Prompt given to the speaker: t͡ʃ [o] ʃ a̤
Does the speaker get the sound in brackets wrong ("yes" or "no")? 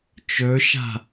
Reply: yes